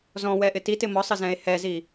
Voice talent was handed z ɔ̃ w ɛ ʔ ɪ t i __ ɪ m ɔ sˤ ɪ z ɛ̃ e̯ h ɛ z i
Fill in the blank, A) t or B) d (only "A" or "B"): A